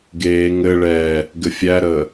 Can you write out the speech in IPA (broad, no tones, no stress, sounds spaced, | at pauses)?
ɡ eː ŋ ɘ ɭ ɛː | ɡ ɘ fʲ æ ɾ əː